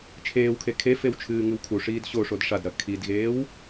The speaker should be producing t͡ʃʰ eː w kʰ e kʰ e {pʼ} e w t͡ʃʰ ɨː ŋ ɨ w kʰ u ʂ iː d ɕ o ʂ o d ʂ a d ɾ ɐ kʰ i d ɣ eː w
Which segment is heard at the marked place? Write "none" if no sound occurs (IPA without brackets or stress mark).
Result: f